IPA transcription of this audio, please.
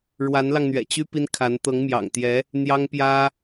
ɻ w a˧˥ n l ɑ˧ ŋ n̪ ɥ ɛ̰˨˩ t͡ɕ y˥ p i˥ n kʰ a˧˥ n t̪ ɤ˧˥ ŋ m j ɑ̰˨˩ ŋ t̪ j ɛ˧˥ | n̪ j ɑ˥ ŋ p j ä˥

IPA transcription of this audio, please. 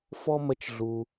f ɔ˥ m ə˧ t͡ʃ ɮ u˩

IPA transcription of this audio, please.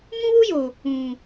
m ũ˦ w u˦ j o˨ | ũ˨

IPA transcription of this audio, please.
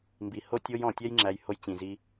m b i˨ h o˧ tʲ o˧ j ɔ̃˨ tʲ ɛ˦ j ŋ͡ǁ æ˧ j h o˧ j t͡ɕ ĩ˨ z i˧

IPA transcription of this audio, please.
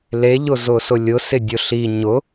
l e ʎ ʊ z ʊ s ʊ lʲ ʊ s ɪ dʲ ʊ ɬ i ɲ ʊ

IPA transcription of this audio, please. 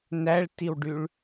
n æ ɭ t i w ɖ y ɭ

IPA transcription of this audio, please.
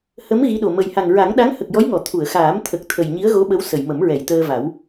h ə˧˥ m ɣ i˧˥ ɗ o˨˩ m ə˨˩ j h a˨˩ ŋ ɹ a˨˩˦ ŋ ɗ a˧˥ ŋ h ə˨˩ k̚ j ɔ˧˥ j ŋ ɔ˨˩˨ t̪ʰ u˨˩˨ ə̯ x aː˨˩˦ m t̪ʰ ə˨˩ k̚ t̪ʰ ə˨˩ j ɲ i˧˥ ə̯ ɣ o˧˥ ɓ ə˧˥ w s ə˨˩˨ j m ə˨˩˦ m ɹ ɛ˨˩˨ j t̪ əː˧ v a˨˩˦ w

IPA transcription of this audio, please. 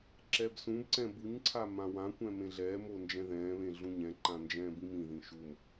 ǁ ɛ b s ũ b ǀ ɛ̃ b u ɲ ǀʰ a m ã w ã kʷ ɛ̃ m ẽ ɮ ɛː m o n d͡ʒ ɛ̃ ð ɛ̃ː β ẽ ɮ ũ ɲ ɛ̃ ǃ ã n d͡ʒ ɛ̃ː b ĩ m ĩ ð ĩ ʃ u m

